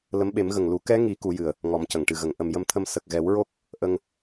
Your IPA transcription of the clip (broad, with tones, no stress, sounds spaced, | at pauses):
l ə˧˥ m ɓ e˨˩˦ m ɣ ə˨˩ ŋ l u˨˩˦ k ɛ˧˥ ŋ i˨˩˦ k u˨˩˦ j ɨ˨˩ ə̯ | ŋ ɔ˨˩˦ m c ə˨˩˨ ŋ ʈ ɨ˨˩ ɣ ə˨˩˨ ŋ ʔ ə˨˩ m j ə˧ m t̪ʰ ə˧ m s ə˨˩ k̚ ɣ ɛ˨˩˦ w ɹ o˦˥ k̚ | ʔ ə˧ ŋ